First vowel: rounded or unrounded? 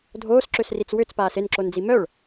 rounded